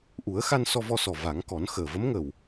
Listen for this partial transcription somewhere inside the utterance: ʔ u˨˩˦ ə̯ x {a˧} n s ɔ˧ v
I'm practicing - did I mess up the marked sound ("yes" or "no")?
no